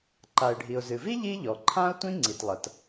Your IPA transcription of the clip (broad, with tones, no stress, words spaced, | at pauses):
ǃa˩ɪ̯ɖʱi˩ʊ̯zɨ˩vi˥ ʎi˥ʎɔ˩ǃʰã˥ʊ̯tʷĩ˥ ŋ͡ǀi˩tlˠɐ˩t